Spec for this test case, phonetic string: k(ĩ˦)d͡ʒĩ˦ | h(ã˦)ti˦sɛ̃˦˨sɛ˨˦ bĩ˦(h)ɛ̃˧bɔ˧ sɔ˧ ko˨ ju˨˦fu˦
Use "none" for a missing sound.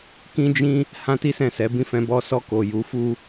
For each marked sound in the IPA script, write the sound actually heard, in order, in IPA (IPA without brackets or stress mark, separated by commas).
ĩ˦, ã˦, f